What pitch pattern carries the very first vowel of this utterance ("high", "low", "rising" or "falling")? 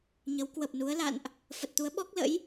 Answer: rising